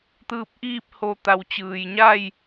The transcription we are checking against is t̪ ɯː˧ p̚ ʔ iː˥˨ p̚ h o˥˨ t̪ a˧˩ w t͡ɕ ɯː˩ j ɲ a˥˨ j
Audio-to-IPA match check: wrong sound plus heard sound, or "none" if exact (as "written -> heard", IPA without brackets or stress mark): o˥˨ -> o˧